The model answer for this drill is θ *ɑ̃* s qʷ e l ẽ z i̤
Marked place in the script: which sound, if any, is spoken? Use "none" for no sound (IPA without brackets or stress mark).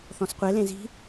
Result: ɔ̃